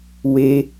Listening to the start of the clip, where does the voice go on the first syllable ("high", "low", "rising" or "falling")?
high